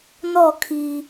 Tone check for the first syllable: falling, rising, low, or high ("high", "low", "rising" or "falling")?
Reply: falling